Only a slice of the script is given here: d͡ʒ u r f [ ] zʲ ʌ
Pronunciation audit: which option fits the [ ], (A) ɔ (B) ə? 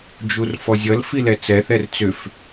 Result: A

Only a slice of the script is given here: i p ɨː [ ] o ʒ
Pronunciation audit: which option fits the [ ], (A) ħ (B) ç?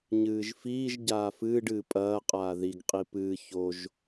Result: B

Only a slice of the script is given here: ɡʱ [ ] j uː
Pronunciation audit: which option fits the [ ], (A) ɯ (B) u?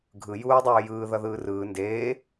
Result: A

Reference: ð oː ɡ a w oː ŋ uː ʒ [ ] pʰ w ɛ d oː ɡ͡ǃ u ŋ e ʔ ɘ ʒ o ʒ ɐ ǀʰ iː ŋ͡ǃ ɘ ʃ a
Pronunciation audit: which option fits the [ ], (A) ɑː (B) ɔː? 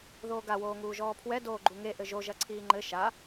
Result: B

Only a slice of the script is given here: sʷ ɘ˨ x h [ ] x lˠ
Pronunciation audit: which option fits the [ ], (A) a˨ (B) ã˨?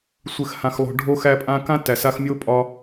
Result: B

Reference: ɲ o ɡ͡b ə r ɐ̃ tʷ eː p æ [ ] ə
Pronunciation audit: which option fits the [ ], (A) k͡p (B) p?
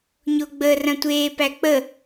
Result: A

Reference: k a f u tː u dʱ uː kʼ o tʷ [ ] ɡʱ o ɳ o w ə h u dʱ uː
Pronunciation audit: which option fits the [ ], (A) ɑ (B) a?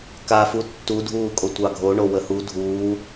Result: A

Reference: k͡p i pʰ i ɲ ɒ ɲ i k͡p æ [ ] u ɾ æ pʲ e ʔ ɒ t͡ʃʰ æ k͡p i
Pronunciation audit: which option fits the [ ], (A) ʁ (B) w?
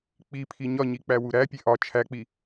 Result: B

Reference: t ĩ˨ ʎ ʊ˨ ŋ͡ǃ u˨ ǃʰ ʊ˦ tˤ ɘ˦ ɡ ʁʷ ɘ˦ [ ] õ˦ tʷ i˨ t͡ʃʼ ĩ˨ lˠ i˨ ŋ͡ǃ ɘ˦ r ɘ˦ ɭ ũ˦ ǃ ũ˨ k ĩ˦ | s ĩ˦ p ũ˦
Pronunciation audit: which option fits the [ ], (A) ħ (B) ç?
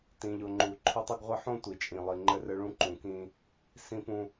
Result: A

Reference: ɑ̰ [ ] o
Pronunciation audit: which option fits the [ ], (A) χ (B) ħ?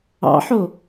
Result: B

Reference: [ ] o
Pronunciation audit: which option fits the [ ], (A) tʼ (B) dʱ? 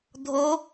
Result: B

